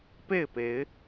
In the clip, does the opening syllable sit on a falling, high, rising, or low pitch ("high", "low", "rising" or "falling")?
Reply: falling